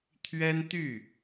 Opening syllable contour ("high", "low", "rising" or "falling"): high